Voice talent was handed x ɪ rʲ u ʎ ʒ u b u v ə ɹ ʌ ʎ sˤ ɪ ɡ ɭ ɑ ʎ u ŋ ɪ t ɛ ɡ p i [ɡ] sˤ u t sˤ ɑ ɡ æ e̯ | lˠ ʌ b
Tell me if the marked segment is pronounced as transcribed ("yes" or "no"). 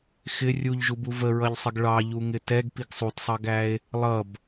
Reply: yes